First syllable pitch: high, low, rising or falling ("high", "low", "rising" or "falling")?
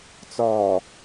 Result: low